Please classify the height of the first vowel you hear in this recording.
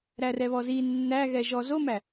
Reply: low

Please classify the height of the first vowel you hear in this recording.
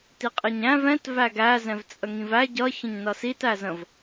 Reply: high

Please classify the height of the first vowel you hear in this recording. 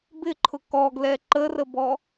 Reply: high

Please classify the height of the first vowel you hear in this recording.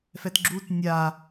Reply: mid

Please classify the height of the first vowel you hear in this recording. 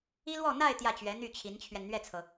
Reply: high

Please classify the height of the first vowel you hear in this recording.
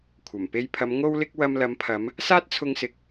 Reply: low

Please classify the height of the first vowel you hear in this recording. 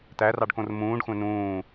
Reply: low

